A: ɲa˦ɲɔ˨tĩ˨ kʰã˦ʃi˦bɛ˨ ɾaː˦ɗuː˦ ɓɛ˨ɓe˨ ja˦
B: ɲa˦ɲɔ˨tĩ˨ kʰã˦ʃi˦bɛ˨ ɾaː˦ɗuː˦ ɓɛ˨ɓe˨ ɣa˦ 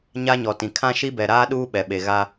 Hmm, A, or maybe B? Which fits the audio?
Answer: B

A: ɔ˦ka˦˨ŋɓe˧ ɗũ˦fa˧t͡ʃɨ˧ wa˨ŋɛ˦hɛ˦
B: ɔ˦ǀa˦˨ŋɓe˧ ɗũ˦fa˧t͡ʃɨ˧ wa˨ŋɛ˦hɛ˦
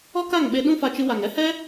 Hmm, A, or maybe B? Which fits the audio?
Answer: A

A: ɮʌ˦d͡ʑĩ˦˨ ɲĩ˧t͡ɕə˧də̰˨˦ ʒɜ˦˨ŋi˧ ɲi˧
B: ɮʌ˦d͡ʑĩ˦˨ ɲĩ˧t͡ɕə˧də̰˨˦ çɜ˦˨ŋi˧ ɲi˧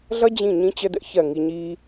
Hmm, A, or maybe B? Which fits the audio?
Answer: B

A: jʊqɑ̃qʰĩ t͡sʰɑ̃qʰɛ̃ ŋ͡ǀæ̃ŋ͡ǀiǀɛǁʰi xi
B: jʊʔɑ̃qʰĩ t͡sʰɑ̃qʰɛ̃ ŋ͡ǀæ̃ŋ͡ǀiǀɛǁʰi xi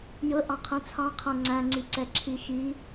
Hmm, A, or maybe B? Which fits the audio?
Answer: B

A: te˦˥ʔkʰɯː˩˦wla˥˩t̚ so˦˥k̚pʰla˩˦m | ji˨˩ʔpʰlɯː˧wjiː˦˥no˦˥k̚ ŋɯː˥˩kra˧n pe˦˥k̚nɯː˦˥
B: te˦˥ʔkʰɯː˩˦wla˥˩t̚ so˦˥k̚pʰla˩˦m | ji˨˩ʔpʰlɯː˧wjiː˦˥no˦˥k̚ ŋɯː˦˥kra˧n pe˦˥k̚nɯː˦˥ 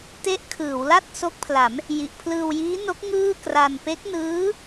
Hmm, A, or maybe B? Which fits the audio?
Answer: A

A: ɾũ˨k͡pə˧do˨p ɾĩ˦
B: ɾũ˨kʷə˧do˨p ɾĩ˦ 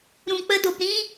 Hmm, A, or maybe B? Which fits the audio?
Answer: A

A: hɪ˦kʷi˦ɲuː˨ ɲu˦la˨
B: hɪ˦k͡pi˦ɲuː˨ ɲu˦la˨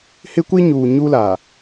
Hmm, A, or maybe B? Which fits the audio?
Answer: A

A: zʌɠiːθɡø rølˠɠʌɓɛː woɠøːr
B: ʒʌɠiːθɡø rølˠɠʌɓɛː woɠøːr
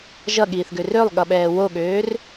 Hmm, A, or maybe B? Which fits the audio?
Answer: B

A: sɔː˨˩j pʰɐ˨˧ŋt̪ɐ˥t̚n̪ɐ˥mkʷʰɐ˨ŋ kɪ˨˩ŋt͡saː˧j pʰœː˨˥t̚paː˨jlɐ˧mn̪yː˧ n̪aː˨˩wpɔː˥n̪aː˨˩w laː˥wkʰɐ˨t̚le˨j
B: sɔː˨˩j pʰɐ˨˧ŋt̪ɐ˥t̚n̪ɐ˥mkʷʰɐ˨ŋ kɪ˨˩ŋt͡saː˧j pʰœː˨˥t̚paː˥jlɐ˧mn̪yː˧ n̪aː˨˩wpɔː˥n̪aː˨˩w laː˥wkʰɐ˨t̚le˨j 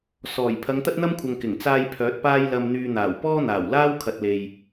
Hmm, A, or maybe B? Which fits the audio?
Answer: B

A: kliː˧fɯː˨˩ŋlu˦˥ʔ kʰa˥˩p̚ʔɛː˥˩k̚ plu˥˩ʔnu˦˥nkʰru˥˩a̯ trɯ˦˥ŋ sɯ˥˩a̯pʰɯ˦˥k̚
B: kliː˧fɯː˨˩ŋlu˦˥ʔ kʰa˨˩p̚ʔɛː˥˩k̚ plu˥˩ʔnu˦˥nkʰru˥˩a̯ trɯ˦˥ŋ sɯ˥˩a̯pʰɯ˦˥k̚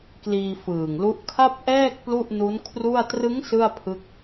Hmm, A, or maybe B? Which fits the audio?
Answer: A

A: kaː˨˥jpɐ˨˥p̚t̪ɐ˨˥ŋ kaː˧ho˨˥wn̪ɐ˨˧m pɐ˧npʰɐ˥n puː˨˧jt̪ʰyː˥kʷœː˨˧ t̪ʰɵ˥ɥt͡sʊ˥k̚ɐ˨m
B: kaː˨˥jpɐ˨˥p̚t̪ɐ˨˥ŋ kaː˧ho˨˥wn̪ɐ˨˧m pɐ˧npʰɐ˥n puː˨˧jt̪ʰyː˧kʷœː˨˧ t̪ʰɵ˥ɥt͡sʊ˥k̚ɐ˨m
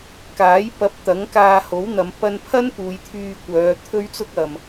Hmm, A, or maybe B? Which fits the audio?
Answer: B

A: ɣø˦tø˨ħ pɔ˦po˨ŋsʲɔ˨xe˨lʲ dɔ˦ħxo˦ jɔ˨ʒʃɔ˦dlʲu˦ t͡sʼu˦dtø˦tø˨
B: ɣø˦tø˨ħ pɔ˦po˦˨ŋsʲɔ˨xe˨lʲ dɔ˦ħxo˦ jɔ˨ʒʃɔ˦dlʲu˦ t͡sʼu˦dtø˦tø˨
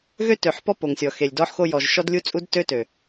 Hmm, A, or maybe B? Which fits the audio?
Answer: A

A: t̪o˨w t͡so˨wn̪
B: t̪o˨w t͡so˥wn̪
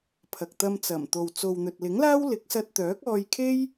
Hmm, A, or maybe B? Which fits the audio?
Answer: A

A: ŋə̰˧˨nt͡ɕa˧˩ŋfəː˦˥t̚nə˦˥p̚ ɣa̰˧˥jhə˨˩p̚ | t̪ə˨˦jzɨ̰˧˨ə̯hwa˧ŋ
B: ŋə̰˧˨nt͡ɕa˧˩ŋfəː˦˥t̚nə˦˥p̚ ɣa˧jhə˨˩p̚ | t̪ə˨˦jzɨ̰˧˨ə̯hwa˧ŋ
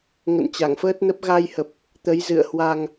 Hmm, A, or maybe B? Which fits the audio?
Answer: B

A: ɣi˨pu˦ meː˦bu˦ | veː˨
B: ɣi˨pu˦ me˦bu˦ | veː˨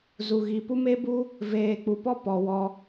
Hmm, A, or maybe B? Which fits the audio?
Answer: B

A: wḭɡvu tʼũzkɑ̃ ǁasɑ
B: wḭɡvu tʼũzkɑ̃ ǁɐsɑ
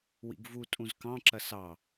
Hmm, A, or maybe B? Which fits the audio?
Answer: B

